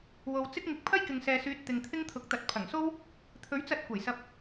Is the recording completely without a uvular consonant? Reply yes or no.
yes